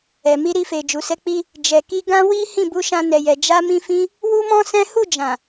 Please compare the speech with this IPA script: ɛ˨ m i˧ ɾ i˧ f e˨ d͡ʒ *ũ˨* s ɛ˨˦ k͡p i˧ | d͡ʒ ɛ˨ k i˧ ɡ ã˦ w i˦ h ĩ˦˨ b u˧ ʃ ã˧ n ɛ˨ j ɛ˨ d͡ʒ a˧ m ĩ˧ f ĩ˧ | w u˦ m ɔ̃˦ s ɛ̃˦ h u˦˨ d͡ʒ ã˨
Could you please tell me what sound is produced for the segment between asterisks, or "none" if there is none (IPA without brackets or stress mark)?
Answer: u˨